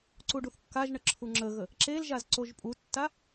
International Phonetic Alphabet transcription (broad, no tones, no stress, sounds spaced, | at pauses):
ǀ u ɖ u θ kː a ʒ ɳ ə ǁʰ u ŋ͡ǁ ə ɣ ə | ǁ e l ʒ a z ǀ o ʒ pʼ u tː a